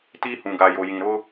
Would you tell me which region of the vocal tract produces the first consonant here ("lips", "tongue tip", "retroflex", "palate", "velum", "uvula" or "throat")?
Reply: tongue tip